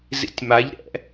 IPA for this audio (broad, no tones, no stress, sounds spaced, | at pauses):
z ḭ tʲ m a ʎ ɾ ɛ̰